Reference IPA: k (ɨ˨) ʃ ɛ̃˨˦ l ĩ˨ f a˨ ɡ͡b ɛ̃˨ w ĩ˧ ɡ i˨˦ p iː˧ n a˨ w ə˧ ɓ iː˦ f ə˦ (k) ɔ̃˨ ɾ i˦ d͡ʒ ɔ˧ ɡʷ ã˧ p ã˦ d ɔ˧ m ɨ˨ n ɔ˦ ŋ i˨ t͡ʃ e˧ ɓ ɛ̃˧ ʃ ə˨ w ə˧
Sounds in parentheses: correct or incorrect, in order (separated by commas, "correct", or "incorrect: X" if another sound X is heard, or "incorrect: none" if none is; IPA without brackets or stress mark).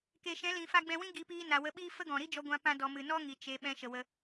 incorrect: e˨, incorrect: ɡ